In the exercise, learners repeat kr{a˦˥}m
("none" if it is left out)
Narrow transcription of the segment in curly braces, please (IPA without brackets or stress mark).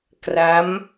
a˦˥